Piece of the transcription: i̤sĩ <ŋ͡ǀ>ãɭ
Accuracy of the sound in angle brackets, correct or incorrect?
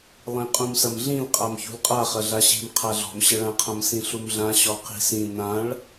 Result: incorrect